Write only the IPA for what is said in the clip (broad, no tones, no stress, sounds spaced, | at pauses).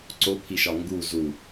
ǀ o pʰ i ʃ ɒ ŋ ɡ u z u